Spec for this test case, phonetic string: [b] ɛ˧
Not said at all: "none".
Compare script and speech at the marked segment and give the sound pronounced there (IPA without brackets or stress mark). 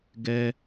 ɡ